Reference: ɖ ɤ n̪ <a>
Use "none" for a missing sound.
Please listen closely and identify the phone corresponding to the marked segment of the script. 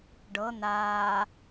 aː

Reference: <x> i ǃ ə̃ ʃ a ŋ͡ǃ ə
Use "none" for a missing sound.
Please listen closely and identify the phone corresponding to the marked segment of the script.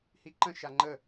h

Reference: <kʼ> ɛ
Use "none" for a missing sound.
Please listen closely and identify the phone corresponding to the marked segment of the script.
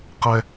q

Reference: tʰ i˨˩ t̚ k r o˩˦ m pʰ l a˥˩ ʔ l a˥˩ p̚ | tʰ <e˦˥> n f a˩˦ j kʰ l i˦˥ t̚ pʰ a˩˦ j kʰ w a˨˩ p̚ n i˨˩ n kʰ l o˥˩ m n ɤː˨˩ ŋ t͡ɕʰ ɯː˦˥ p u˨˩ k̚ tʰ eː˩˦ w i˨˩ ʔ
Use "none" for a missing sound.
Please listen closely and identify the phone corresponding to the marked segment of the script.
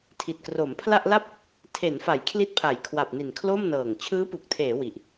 e˩˦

